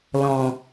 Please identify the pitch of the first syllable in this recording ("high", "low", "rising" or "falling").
low